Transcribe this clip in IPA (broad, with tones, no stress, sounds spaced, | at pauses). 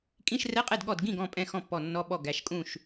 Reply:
kʼ ĩ˧˥˧ ʃ r ɛ˧˥˧ qʼ ɛ˥˩ d ɠ ɔ˧˩ d ɡ ĩ˥˩ ɡ ɔ̃˧˩ pʼ ɛ̃˧˩ x ɔ̃˥˩ pː ɔ˧˩ nː ɔ˧˥˧ ɓ ɔ˥˩ ɡ æ˩˧˩ ʃ kʼ ũ˥˩ ʃ